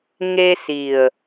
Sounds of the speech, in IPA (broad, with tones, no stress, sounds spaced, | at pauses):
ŋ e˧ s i˨˩ ə̯